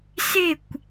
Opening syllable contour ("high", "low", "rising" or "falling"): falling